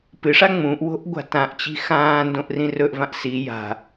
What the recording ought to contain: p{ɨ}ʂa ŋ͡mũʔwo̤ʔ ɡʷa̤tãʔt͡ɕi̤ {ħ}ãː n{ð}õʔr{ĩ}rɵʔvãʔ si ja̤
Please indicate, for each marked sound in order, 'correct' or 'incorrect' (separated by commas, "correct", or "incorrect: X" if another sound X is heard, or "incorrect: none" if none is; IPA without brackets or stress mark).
correct, incorrect: x, incorrect: d, correct